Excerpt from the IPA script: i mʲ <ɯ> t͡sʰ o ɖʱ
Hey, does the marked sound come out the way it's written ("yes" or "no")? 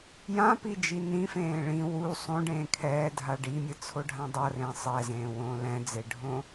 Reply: yes